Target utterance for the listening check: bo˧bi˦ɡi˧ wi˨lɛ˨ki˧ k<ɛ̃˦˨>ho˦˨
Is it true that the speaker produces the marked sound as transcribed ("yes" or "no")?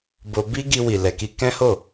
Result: no